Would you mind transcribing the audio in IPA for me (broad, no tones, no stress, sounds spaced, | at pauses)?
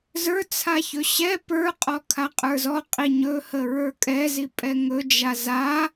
z ə˞ t͡sʰ a ç ɵ ɕ ɛ p ə˞ qʼ ɔ kʰ a qʼ ə˞ z ɔ qʼ i ɲ ɵ h ə ɹ ə˞ kʼ ɛ z i pʼ ɛ ŋ ɵ d͡ʒ a z a